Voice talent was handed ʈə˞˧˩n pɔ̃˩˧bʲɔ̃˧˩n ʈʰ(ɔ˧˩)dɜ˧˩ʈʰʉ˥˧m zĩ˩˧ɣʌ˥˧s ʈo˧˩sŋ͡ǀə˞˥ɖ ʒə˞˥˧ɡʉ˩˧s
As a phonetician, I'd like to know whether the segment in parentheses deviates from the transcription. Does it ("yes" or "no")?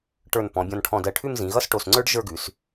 yes